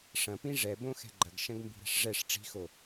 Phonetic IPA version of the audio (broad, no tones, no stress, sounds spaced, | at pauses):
ʂ ɐ̃ p ĩ ʐ ɛ b õ x ɛ̤ ɡ͡ǃ ɐ ɡ ʃ ɐ̃ ɡ m b i̤ ɾ ɛ̤ ʂ ʐ ɛ ʂ ʈ͡ʂ i̤ x o